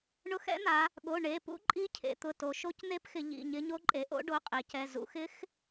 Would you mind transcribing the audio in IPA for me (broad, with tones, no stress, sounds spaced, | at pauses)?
ɳ ʊ˧˥ x ɛ̰˧˥ n̪ a˩˧ | ɠ o˩˧˩ ɳ e˩˧˩ p ṵ˧˥ ǃʼ i˧˥ cʰ ḛ˩˧ t̪ ʊ˩˧˩ t o˩˧ ʃ o˧˥ c n̪ e˧˥ p x ɪ˩˧ ʎ ḭ˩˧˩ ɲ ɪ˧˥ ɲ o˧˥ ǃʼ e˩˧ ʔ o̰˧˥ ɖ o˩˧˩ qʼ e˩˧ c ɛ˩˧˩ z ṵ˩˧ x ɪ˧˥ x